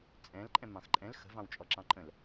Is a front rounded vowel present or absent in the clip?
absent